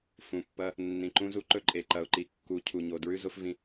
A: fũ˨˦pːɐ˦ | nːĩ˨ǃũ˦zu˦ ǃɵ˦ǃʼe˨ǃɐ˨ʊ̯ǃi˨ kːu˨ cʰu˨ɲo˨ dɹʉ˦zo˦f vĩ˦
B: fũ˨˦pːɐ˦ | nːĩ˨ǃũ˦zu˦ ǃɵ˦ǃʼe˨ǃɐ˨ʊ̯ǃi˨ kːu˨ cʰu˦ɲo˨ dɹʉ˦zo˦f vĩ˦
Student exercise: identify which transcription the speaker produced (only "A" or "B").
A